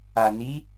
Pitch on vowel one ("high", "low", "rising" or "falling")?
low